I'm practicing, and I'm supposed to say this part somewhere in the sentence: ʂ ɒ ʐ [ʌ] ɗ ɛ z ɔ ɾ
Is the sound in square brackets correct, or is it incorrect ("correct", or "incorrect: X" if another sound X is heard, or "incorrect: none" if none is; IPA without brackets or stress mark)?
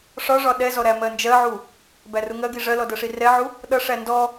incorrect: ɒ